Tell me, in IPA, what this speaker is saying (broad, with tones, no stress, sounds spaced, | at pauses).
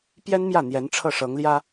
p j ɛ˥ n m j ä˥˩ n̪ j ɛ˧˥ n ʈ͡ʂʰ ɤ˥˩ ʂ ɤ˧˥ ŋ l j ä˥